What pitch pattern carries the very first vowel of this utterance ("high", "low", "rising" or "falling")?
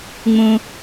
low